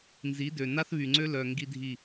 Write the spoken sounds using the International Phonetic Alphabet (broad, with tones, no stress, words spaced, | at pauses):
nzi˨˦dø˨ na˦θβy˨ŋ͡ǀø˦lœ˨ ŋɡi˦dʱi˦˨